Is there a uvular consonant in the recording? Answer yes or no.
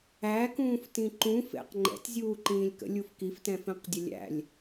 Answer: yes